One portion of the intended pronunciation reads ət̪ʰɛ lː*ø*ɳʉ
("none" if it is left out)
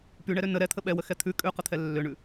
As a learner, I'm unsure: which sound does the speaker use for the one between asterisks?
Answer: ø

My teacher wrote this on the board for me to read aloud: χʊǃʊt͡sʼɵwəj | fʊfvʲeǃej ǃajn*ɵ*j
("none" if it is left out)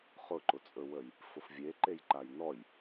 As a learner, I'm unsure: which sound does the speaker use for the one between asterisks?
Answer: ɔ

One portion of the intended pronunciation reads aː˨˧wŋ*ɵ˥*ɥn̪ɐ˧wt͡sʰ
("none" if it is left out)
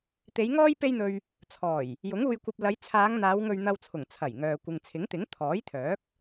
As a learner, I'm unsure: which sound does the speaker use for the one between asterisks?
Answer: ɵ˧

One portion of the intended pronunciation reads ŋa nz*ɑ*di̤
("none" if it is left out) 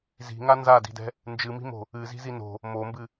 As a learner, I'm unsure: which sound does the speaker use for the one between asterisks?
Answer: a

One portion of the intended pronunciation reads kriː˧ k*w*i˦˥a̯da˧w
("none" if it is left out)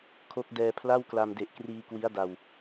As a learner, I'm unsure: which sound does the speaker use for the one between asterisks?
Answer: w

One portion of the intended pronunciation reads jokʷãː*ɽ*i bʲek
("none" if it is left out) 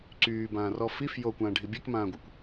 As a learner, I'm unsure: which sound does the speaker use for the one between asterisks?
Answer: ɖʱ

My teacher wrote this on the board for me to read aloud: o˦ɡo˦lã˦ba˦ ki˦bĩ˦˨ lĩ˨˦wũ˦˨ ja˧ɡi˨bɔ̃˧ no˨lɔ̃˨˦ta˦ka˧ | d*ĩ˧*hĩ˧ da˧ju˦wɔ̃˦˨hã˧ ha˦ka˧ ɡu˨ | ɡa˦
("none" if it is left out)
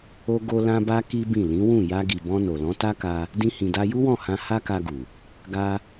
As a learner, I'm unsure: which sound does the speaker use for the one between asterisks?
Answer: ĩ˦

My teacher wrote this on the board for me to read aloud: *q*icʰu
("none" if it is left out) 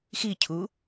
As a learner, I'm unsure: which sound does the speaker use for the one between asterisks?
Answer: x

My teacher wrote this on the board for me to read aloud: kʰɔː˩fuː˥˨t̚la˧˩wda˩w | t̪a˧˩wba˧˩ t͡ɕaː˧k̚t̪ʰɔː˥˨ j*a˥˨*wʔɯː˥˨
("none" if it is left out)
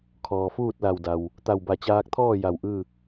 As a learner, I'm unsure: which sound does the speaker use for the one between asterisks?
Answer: a˧˩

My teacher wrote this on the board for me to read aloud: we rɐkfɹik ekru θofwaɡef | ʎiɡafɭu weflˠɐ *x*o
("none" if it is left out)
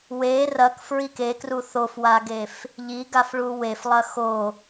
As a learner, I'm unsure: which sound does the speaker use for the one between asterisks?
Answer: x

